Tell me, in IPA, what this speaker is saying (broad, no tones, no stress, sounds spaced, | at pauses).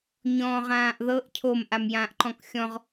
ɲ ɔ̃ː ʁ ãː ʔ ð ɤ ʔ cʰ o m ʔ a m j ãː ʔ ǃ ɔ̃ k xʲ ɔ̃ ʁ